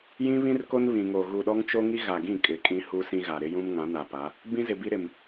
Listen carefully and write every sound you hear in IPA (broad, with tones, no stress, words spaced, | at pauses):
jĩ˦βĩ˦rko˦n βĩ˨ŋo˨ ɣu˨ɗɔ˦ŋt͡ʃo˦ŋi˦ ɣa˨ɡĩ˦˨ kʼɪ˨kʼĩ˦ hu˦sĩ˦ɣa˨ ɾɪ˦jũ˦mŋã˨˦ na˨pa˨˦ | bĩ˦zɪ˨bi˦ ɾɪ˨m